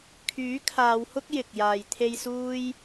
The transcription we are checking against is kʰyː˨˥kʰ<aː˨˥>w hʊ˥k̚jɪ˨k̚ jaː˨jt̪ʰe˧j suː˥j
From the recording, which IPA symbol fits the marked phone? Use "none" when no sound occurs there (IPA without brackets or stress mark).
aː˨˧